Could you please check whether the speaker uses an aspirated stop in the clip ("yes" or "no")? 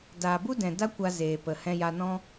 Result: no